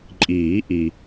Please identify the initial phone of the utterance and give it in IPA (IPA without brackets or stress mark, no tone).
ǃʼ